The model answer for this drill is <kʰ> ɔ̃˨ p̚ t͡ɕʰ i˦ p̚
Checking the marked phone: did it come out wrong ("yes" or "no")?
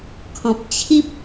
no